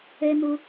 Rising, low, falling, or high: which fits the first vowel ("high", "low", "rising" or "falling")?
low